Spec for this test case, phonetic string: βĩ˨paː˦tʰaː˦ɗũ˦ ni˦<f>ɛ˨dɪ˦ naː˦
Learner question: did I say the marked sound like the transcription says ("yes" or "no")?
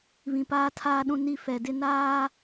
yes